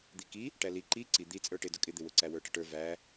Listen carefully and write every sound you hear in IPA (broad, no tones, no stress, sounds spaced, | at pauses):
d̪ i k i | ʈ æ l i ǃ i ǀ i d̪ i t͡sʼ ə˞ ʈ ɪ d ʊ kʼ ɪ d̪ ɪ w ʊ ǀ æ w ə˞ ʈ ə ʈ ə˞ v æ